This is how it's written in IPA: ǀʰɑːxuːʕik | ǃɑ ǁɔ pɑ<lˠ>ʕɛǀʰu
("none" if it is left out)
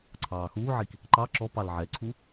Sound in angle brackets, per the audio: l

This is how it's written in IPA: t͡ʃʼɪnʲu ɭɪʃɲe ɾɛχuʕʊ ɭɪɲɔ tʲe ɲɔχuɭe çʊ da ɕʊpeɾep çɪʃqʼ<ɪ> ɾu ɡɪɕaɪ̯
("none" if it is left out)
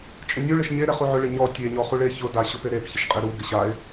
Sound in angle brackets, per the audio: ɪ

